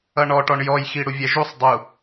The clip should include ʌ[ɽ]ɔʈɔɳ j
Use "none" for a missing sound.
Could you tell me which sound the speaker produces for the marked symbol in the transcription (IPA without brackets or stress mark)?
ɳ